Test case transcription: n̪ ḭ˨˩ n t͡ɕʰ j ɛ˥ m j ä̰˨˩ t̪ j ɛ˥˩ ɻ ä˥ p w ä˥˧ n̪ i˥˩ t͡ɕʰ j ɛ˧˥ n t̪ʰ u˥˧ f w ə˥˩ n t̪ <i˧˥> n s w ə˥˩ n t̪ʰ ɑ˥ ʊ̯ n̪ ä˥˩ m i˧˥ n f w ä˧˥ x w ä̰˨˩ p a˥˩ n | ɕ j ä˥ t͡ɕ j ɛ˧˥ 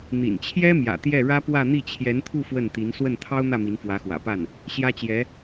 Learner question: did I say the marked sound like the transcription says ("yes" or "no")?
yes